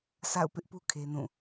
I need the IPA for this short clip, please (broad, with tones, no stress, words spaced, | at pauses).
sa̰˦˨ʊ̯pɪ˦ʔpu˦ kʰe˦nũ˦˨